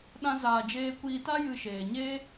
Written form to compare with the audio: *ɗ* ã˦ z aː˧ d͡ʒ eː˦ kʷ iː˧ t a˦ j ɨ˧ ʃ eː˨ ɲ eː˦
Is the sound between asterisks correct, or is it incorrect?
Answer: correct